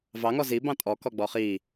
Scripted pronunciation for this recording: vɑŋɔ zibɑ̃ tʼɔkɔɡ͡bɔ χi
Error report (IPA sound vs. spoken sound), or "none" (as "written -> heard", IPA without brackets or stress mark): none